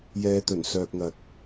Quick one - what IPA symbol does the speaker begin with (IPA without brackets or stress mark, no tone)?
j